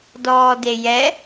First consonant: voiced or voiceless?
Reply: voiced